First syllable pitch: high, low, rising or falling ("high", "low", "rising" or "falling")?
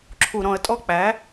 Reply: low